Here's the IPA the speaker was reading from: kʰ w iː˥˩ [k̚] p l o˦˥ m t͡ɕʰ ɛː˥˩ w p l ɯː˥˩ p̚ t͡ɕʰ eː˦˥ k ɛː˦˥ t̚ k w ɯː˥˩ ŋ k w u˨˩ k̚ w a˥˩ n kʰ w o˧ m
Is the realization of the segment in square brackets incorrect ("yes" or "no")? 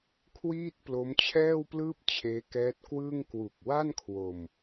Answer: yes